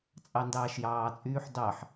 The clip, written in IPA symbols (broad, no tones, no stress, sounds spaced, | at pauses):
t͡sʼ ɑ n d ɑː ʃ j ɑː t͡sʼ yː ħ d ɑ ħ